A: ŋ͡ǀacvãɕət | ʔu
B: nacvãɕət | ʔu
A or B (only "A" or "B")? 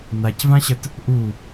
B